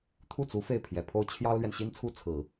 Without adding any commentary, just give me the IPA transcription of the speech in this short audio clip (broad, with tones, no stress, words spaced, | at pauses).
t̪ʰu˥˩t͡su˧˥ fe˥˩ɪ̯pʰjɛ˨˩pʰo˥ʊ̯ t͡ɕʰjɑ˥ʊ̯lɥɛ˨n ɕi˥nt͡sʰu˥ t͡sʰɹ̩˨˩˦